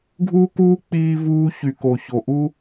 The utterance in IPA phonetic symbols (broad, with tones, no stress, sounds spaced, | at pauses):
ɡʱ uː˦ k uː˦ k͡p iː˦ v uː˦ ç y˨ k o˨ ç o˨ ʔ u˦